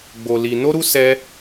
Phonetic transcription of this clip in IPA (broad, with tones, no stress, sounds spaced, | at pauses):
ɡ͡b o˧ l i˧ n o˦ ɾ u˦ s ɛ˦